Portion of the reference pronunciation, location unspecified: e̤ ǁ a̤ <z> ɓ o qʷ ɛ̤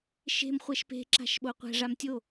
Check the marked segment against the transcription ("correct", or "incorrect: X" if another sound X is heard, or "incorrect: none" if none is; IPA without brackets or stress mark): incorrect: ʃ